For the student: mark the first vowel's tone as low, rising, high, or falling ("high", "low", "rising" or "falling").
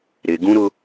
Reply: high